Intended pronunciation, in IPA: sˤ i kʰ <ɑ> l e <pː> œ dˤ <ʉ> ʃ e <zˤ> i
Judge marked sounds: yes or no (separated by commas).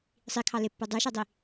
yes, yes, yes, no